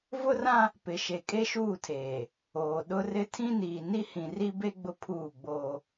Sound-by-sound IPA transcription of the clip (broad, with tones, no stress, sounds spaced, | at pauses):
v ʊ˦ r ã˦ | p ɪ˨ ʃ e˨ kʼ e˦ ʃ uː˦˨ tʰ eː˨ | oː˨ ɗ ʊ˦ r ɪ˦ tʰ ĩ˦ n iː˨ n i˦ h ĩ˨ r i˦ b e˦ ɡ͡b ʊ˦ pʰ uː˦˨ ɡ͡b oː˦